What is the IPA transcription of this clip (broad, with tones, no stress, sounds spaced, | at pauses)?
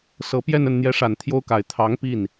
s ɤ˨˩ p j ɛ˥˧ n ə˥˩ n n̪ j ɛ˧˥ ʂ a˨˩ n t̪ʰ j o˥ ʊ̯ k a˨˩ ɪ̯ t̪ʰ ɑ˧˥ ŋ p i˥˩ n